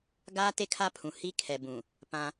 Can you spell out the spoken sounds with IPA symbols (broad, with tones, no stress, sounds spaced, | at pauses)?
ɡ aː˦ t e˦ kʰ a˦ pʰ ũ˨ h i˦ kʰ ɛ˨ b ũ˨ | p ã˦